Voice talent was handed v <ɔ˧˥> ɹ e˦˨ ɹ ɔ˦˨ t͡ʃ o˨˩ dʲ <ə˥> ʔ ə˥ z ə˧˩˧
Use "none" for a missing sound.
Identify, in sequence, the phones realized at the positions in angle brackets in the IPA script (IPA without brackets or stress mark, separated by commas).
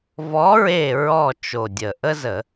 ɔ˧˥, ə˨˩